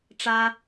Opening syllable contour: high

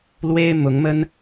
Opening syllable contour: high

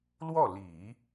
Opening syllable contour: falling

